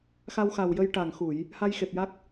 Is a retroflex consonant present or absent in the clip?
present